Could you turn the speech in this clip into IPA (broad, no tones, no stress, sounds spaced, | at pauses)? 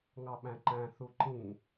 ŋ ɑ ɓ æ̃ ǃ æ̃ θ u ǃ ĩ